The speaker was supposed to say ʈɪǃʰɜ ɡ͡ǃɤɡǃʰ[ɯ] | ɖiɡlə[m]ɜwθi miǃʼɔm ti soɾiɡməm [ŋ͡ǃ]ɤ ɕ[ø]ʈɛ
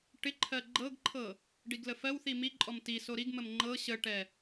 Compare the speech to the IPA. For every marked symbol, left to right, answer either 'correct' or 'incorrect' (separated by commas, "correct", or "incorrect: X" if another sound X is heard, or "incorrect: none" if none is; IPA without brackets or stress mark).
incorrect: ɤ, incorrect: f, correct, incorrect: ə